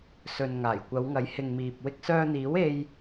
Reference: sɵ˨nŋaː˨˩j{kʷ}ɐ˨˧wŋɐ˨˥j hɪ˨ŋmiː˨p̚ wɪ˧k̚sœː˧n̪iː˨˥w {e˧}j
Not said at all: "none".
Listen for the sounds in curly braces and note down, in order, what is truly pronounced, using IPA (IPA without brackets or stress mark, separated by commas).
kʷ, e˧